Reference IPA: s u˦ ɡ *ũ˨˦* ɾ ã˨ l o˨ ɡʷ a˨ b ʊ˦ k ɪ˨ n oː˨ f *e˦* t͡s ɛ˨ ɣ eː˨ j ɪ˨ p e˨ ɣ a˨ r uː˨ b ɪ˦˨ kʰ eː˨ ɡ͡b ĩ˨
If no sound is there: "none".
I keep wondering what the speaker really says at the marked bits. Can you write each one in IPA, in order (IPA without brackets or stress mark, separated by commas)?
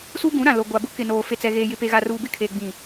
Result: ũ˨˦, e˨